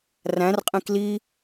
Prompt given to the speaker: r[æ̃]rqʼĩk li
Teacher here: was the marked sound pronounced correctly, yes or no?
yes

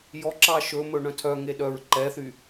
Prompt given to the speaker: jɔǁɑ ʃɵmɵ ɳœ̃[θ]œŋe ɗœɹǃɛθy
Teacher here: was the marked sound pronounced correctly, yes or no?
no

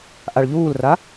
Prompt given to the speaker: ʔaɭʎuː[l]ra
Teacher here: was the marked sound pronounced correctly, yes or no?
yes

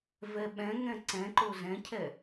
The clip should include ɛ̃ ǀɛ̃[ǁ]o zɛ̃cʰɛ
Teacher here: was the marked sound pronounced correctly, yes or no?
no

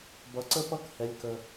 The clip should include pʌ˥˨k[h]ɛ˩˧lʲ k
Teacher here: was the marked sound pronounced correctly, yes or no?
yes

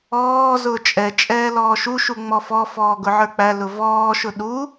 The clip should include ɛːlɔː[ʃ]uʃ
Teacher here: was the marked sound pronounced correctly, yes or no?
yes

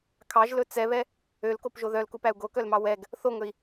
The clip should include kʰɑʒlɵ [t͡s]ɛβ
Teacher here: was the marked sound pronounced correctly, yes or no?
yes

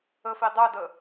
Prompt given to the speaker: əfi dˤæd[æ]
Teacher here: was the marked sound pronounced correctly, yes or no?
no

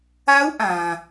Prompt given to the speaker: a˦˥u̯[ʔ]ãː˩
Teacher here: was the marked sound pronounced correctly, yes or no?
yes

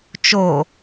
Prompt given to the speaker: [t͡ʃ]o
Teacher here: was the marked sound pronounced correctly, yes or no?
yes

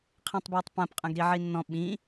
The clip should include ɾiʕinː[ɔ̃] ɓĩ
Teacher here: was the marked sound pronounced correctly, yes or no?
yes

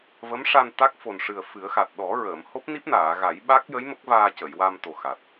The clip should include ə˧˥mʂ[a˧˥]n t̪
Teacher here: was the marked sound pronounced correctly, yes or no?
no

